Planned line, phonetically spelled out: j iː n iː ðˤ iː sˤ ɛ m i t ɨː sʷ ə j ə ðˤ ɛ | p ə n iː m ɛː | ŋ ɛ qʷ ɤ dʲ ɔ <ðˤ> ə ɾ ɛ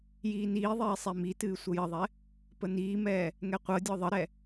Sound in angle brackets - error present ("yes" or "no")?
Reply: no